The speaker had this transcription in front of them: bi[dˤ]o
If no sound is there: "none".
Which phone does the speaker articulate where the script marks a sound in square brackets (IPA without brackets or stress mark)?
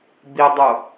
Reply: dˤ